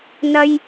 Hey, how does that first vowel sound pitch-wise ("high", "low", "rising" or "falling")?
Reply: high